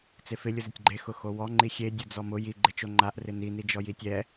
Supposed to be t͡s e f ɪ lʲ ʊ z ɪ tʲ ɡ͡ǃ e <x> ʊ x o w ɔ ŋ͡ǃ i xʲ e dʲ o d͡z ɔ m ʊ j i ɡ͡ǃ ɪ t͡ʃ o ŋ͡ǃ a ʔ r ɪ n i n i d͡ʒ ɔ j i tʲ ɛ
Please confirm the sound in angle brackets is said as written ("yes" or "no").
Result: yes